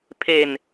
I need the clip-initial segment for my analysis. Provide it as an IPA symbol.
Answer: pʰ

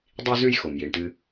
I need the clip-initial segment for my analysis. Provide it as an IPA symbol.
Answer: dˤ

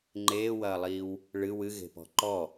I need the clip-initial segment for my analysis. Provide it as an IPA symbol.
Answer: ŋ͡ǃ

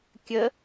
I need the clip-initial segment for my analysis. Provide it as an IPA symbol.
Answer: kʲ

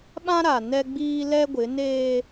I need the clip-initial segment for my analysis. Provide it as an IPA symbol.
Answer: ɓ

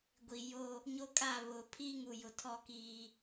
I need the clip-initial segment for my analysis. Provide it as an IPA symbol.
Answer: ɡʷ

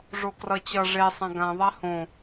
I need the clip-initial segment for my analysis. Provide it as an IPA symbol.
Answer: ʐ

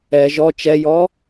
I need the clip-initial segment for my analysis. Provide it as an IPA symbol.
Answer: ɛ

